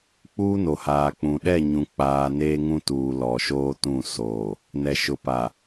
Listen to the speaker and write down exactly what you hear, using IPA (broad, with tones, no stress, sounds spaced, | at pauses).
k͡p uː˦ n o˨ h aː˨ k͡p ũ˨ ɗ ɛ˦˨ ɲ ũ˨ k͡p aː˨ n eː˦ ŋ ũ˦ t uː˨ l ɔ˨ ʃ oː˦ t ũ˦˨ s oː˨ | n ɛ˨ ʃ ʊ˨ p a˨